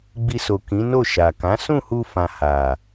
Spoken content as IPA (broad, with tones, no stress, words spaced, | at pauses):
ɡ͡bi˧so˨ kĩ˨˦no˦˨ ʃa˨kã˨˦ sũ˦˨hu˧ fã˨ ha˨